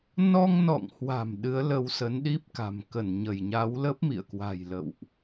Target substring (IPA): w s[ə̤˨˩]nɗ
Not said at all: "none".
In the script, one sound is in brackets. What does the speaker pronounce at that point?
ə˨˦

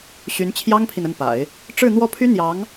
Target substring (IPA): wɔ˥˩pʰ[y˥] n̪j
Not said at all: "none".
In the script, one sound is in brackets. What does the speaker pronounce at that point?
y˥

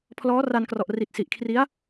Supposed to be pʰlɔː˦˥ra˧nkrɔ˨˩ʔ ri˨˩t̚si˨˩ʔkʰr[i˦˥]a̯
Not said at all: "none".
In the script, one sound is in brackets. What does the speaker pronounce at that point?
i˦˥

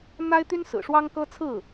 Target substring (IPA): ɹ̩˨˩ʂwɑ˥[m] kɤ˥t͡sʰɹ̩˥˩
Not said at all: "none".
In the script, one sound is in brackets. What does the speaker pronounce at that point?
ŋ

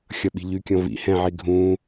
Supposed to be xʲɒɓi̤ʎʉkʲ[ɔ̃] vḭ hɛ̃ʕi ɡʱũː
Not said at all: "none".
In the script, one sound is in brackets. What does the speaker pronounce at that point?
ɔ̃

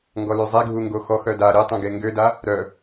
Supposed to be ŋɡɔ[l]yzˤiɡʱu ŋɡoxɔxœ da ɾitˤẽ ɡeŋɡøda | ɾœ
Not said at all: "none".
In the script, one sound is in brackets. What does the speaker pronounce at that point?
l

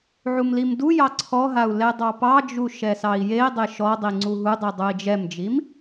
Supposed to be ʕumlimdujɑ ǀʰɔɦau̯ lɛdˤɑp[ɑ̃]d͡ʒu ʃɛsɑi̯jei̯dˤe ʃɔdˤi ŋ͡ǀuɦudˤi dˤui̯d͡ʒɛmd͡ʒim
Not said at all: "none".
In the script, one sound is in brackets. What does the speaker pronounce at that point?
ɑ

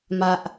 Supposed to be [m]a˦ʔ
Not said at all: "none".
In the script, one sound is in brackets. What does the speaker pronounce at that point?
m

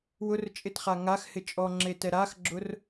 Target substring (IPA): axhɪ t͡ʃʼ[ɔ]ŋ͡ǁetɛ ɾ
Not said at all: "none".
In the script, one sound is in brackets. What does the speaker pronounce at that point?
ɔ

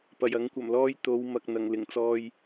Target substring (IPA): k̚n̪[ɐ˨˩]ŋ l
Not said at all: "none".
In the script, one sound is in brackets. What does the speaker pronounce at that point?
ɐ˨˩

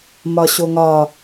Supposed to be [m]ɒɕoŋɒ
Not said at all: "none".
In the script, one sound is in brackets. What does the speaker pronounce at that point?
m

